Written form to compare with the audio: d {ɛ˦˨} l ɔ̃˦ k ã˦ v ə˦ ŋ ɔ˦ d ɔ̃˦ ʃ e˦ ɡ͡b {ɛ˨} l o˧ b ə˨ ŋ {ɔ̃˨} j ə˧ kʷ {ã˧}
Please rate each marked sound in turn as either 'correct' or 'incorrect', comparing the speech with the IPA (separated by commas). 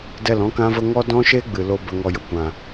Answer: correct, incorrect, incorrect, incorrect